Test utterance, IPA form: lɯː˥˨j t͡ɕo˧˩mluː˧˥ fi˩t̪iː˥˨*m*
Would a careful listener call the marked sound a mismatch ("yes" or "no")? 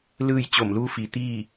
yes